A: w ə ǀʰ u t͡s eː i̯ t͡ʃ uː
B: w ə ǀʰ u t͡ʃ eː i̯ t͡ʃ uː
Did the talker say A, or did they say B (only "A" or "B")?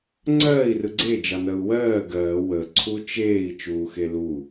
B